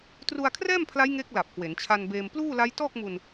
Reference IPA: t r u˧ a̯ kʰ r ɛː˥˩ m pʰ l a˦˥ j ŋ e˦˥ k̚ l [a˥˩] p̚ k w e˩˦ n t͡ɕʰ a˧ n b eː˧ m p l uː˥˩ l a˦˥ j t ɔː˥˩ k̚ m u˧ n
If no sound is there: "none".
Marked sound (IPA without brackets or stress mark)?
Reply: a˨˩